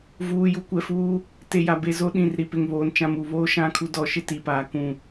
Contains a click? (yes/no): no